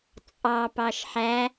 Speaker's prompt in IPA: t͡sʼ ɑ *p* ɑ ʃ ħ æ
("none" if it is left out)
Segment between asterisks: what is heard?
p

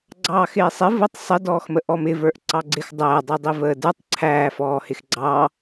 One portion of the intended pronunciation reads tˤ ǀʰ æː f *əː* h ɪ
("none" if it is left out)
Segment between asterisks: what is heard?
ɔː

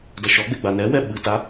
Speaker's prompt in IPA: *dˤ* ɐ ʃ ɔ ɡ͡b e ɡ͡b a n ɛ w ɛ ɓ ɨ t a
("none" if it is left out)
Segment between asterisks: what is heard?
d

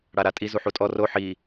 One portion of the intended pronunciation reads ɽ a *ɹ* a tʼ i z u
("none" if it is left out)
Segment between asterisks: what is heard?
ɾ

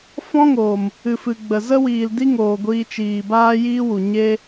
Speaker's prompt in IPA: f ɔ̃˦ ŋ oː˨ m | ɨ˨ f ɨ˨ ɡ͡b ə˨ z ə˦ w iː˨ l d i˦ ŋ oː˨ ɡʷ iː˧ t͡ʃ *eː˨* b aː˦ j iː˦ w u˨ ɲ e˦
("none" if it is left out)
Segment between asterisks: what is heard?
iː˨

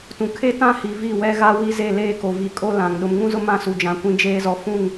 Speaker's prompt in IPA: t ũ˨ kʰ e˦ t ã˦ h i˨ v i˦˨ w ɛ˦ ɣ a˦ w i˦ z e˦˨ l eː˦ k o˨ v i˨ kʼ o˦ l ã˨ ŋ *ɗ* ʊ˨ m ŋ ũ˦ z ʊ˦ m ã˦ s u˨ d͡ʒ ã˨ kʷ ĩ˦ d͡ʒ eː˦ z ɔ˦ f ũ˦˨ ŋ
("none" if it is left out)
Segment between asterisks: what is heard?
ɗ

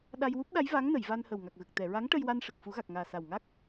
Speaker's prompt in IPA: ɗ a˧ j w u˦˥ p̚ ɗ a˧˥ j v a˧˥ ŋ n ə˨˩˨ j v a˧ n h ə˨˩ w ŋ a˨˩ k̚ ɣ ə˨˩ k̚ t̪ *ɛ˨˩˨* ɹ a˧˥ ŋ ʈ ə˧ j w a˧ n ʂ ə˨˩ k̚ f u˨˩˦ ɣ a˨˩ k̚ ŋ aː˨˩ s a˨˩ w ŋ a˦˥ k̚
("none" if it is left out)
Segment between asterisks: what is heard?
ɛ˨˩˨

